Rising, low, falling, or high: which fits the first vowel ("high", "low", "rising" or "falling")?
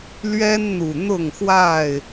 high